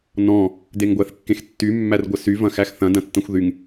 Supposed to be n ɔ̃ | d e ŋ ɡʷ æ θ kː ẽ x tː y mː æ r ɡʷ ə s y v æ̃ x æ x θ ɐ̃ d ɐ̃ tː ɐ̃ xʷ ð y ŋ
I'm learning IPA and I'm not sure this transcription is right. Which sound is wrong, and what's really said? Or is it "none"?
æ̃ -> ɐ̃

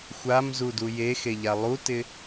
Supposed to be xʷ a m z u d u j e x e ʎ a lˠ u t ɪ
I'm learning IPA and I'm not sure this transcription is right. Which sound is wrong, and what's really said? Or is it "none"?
none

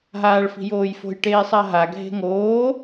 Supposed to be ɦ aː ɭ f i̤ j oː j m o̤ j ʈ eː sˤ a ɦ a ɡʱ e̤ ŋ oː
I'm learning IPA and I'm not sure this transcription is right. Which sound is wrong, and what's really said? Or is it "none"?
m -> f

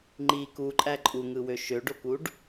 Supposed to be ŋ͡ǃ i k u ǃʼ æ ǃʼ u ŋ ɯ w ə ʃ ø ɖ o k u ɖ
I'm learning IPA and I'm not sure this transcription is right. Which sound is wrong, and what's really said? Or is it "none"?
ə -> ø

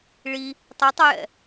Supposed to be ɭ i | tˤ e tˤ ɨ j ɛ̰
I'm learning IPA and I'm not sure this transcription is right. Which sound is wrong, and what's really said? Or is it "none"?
none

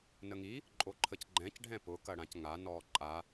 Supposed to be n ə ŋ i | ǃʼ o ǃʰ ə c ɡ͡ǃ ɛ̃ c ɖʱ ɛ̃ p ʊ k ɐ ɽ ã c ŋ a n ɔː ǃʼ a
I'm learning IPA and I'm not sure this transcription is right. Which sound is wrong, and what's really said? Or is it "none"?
none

